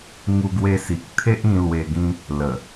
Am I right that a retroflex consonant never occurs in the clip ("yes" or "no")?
yes